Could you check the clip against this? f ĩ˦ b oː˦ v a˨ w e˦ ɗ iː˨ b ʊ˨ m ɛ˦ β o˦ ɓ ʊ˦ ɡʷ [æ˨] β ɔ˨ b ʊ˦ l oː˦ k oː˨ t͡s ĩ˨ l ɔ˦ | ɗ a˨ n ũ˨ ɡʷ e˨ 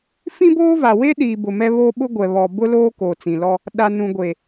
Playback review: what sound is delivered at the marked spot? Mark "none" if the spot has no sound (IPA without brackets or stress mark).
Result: ɛ˨